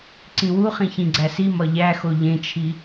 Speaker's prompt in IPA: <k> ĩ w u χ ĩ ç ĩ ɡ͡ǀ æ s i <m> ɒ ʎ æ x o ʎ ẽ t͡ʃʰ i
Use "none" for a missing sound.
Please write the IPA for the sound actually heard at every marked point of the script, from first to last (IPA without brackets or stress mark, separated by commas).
ǀ, m